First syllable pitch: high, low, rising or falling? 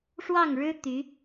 falling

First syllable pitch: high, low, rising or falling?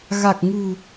low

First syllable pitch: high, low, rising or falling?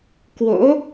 rising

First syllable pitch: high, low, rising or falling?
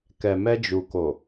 low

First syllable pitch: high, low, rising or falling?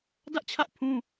high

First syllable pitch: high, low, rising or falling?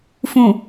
low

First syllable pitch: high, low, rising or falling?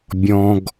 low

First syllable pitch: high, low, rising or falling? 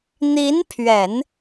rising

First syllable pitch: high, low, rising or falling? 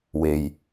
low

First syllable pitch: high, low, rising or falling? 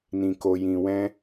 low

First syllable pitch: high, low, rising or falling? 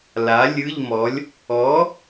rising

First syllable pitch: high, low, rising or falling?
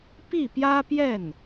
falling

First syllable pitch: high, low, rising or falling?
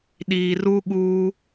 low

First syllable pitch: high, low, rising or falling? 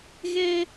high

